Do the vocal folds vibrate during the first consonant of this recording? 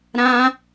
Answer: yes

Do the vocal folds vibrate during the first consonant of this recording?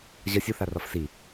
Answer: yes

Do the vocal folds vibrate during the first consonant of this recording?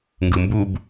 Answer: yes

